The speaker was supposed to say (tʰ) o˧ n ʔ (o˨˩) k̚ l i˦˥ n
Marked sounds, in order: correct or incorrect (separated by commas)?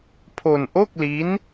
incorrect, incorrect